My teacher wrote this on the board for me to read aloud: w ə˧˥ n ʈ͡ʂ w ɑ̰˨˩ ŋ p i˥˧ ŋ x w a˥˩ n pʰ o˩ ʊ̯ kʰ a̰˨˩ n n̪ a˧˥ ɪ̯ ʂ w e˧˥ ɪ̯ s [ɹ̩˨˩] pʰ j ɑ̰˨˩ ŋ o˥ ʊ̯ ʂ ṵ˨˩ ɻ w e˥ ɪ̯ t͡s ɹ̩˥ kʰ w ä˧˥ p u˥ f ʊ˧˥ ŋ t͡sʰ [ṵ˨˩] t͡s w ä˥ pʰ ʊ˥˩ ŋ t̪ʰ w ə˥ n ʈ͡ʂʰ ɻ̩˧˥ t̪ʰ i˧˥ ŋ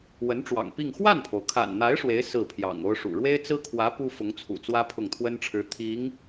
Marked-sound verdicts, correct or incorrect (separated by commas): incorrect, correct